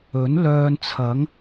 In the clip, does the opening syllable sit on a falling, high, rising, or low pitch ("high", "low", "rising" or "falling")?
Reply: rising